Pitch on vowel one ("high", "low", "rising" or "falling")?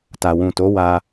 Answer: low